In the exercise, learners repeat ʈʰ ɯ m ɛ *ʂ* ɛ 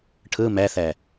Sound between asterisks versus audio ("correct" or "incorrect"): incorrect